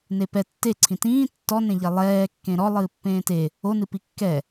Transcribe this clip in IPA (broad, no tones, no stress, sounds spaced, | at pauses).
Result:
n e p ɛ tː e ǀʰ ĩ t ĩː tː ɔ n ẽ ʎ ɛ lˠ ɛː kː ẽ ɾ ɔ lˠ ɨː pː ẽː t e | o n ɨ p i kː ɛ